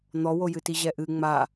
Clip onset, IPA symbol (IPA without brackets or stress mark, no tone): n̪